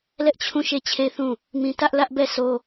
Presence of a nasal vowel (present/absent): present